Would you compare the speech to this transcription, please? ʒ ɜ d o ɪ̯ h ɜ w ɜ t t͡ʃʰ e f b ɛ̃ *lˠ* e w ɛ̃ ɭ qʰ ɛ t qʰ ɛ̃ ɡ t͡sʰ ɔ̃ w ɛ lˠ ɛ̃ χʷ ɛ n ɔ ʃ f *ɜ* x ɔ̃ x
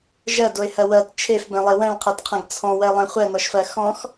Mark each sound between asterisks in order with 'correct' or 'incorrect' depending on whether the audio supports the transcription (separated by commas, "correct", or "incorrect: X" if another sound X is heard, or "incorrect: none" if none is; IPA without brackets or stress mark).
correct, correct